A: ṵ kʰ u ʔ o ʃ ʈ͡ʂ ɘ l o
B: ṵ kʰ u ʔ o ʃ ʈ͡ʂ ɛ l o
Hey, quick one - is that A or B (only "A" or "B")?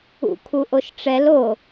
B